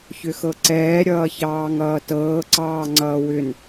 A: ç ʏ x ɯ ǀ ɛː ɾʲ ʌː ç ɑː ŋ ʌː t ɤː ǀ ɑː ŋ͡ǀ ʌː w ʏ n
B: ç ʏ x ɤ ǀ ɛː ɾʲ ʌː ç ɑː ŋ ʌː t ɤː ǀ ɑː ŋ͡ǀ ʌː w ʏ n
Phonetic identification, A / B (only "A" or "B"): B